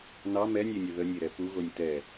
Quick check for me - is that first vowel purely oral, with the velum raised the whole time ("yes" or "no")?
yes